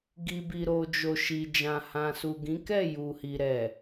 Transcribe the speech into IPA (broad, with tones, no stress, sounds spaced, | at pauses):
ɡ i˨ b i˨ ɾ o˨ d͡ʒ o˨ ʃ i˨ d͡ʒ ã˨ h ã˨ s u˨ ɡ ĩ˨˦ k ɛ˦˨ j u˨ h i˨ ɾ ɛ˨